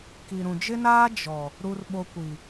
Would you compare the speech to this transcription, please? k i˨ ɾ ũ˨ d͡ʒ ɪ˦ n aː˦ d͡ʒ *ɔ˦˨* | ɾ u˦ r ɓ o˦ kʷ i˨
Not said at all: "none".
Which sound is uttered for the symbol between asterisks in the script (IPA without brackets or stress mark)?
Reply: ɔ˨